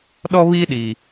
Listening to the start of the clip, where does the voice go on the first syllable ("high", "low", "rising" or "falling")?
high